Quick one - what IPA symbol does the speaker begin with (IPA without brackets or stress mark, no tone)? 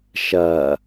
ʃ